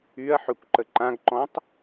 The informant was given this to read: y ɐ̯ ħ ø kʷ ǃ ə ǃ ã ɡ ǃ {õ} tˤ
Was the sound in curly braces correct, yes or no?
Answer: no